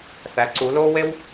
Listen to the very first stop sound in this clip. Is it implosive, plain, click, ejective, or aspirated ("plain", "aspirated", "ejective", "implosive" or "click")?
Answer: click